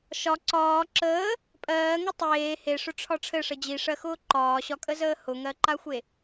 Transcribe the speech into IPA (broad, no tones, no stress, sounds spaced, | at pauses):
ʃ ɒ ǀ ɒː ǁ əː | pʼ ɜː ŋ ɘ tˤ eː h e ʂ ʊ ʈ͡ʂʰ ɒ ʈ͡ʂʰ ɘ ʂ ə d͡ʑ i ʂ ɜ x ʊː ǃ ɒː ɕ ɒ kʼ ə z əː h ʊ ŋ ɜ ǃ a xʷ e